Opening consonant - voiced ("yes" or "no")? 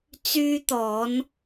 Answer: no